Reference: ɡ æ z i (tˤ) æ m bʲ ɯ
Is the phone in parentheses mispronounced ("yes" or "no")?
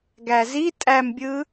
yes